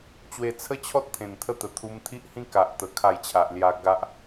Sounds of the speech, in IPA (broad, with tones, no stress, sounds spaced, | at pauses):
t͡ɕ w e˧ t͡sʰ ə˦ t͡ɕʰ ɔ˦ t̚ t̪ʰ ẽ˨˩ n t̪ʰ ə˥˧ t̪ ə˨˩ t̪ʰ u˧ m t̪ʰ i˦ ʔ h ĩ˦ k a˨ ʔ t̪ ə˧ kʰ a˥˧ j t͡ɕʰ a˨ ʔ l j a˧ ɡ a˦ ʔ